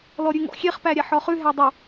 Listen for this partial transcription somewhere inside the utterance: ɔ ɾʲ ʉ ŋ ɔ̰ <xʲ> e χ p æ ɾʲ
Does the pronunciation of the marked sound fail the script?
no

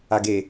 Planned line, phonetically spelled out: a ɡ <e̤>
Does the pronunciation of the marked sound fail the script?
yes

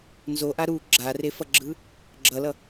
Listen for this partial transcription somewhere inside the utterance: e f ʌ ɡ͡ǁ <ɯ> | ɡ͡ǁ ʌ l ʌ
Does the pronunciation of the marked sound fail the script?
no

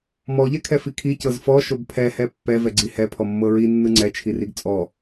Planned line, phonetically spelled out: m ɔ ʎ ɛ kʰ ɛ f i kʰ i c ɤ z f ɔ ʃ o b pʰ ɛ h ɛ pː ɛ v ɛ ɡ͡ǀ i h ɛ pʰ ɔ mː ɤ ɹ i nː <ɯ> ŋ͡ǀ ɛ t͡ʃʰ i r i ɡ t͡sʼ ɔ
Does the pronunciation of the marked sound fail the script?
no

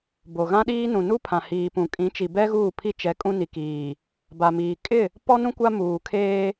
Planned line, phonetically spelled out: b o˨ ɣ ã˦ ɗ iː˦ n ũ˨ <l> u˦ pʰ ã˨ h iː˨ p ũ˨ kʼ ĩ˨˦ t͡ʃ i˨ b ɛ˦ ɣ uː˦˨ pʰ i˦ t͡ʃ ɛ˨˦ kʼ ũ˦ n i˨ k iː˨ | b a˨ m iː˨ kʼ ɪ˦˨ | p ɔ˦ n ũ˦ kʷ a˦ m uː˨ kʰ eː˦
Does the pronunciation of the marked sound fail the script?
yes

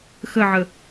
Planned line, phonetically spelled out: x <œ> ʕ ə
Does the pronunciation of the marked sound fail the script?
yes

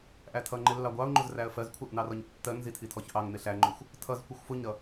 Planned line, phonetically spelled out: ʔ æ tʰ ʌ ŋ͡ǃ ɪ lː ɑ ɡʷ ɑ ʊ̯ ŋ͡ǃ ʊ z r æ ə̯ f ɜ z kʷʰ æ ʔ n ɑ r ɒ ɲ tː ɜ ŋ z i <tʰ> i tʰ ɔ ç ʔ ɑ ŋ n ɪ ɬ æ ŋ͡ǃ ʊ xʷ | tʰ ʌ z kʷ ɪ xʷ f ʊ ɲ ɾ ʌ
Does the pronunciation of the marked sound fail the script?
no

